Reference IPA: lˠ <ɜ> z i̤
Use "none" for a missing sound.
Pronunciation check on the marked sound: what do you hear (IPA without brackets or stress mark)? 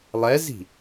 ɛ